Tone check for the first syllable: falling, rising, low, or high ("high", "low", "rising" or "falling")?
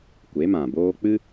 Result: rising